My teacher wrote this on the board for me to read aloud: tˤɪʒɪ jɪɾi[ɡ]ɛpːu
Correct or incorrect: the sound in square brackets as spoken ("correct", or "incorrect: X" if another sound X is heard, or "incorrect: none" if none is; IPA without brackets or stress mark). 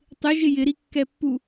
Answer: incorrect: kː